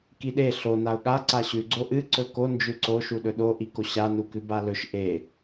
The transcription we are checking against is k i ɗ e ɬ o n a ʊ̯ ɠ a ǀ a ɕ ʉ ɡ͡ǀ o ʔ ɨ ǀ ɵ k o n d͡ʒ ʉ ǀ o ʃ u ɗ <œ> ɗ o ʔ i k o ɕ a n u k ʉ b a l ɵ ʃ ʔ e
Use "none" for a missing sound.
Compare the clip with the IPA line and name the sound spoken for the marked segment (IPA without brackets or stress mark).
ɵ